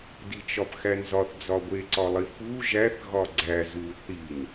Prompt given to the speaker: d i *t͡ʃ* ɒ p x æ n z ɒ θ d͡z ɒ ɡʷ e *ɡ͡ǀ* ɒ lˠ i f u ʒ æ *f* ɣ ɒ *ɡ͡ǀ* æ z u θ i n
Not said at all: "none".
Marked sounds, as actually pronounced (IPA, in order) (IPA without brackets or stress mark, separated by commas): t͡ʃ, ǀ, θ, ɡ͡ǀ